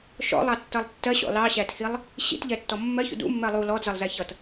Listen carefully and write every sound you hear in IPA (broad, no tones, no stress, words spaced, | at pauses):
ʃɔ̰lˠɑtːʌlˠ tːɜɕɔ̰ lɑɕætxilˠ | ɕḭtʎɛtːɔ mːɜçṵ dṵmːɜ lˠu lɔdzʌlˠzæ çʌt